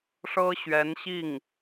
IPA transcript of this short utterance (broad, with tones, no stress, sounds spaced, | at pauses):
ʂ ɤ˥ ɕ ɥ ɛ˧˥ n ɕ i˥˩ ŋ